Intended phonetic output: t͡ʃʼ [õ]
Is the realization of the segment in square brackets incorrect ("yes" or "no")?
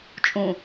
yes